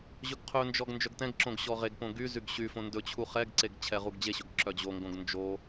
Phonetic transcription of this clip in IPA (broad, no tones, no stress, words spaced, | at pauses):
ʑɵɡqʰɵnd͡ʒɔɡ nd͡ʒœɡtɛ̃ɡǁõɡ ɕɔʁeɡpõ ɡyzyɡ ɕyfõ ndɵt͡ɕʰu χɛɡǀeɡ t͡ɕʰɛʁuɡd͡ʑeɕɵɡ ǁœd͡ʑoŋɡõɡ nd͡ʒo